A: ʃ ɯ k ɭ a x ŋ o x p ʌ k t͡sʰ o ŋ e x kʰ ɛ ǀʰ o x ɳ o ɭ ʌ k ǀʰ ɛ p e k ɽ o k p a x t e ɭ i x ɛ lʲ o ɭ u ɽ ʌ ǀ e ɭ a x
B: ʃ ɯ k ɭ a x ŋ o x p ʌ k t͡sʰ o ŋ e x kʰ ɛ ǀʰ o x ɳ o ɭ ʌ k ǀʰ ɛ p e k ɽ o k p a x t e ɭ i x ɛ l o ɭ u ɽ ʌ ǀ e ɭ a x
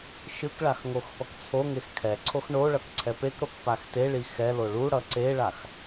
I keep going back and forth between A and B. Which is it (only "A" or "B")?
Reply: B